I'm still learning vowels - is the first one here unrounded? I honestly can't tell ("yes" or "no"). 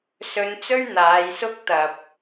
no